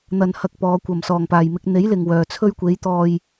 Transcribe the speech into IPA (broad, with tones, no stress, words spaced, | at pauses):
n̪ɐ˧nhɐ˧k̚pɔː˨˧ kʷɐ˨˩msɔː˨˩ŋpaː˨˩j mɪ˧k̚n̪e˨˥jlɪ˨ŋ wœː˨t͡sʰɵ˥ɥ kʷe˨˥jt̪ɔː˧j